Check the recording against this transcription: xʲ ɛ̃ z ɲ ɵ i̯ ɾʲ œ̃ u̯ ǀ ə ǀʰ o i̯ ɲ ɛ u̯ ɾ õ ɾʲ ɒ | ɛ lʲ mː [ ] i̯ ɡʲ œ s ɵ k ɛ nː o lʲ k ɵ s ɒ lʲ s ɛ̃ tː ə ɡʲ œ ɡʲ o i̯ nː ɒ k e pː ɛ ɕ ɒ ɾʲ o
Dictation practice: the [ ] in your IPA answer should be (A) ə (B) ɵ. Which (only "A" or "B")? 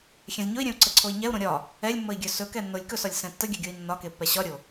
A